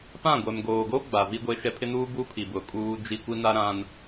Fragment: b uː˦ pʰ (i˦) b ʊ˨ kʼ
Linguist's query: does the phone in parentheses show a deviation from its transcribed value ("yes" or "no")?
yes